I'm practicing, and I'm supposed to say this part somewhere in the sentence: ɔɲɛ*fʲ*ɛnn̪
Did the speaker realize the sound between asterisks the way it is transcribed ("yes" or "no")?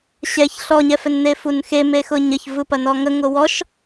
no